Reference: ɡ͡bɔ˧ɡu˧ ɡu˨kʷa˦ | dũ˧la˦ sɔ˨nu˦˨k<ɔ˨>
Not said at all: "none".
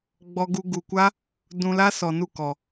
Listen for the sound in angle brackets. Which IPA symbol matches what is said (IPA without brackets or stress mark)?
ɔ˨